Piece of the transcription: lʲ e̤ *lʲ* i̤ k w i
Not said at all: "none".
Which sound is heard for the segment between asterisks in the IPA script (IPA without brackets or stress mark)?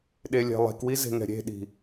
lˠ